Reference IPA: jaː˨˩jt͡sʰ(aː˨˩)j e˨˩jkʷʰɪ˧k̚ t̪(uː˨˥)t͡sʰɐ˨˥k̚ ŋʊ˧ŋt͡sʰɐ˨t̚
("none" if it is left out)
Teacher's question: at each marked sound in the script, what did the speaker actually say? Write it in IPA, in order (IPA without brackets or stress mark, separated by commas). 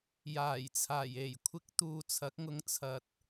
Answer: aː˨˩, uː˧